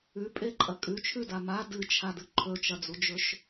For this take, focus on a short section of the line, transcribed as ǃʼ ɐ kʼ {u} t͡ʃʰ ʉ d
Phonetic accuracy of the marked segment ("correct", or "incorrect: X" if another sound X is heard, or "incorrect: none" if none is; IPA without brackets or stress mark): incorrect: ʉ